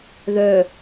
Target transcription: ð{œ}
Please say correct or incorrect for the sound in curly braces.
correct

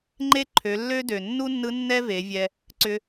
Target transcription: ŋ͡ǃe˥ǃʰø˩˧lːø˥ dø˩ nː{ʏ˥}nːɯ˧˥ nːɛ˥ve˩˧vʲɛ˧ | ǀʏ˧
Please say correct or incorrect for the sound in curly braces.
incorrect: u˥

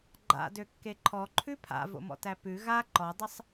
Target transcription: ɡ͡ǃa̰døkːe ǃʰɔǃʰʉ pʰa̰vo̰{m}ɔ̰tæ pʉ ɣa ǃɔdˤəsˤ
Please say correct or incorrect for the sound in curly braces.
correct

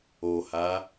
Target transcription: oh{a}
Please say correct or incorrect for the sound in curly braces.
correct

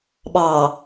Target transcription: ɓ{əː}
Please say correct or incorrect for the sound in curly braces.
incorrect: ɑː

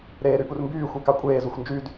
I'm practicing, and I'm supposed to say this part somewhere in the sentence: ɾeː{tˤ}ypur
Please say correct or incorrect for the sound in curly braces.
incorrect: ɾ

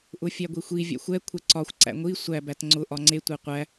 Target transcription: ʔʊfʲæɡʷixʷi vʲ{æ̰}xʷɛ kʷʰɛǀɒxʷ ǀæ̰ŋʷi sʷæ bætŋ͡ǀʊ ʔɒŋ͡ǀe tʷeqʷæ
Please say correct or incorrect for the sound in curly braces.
correct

